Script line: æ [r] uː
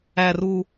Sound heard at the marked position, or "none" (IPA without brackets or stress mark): r